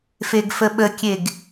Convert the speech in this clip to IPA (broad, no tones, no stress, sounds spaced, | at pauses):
f e ɡ f ə ɓ ə kʲ e ɡ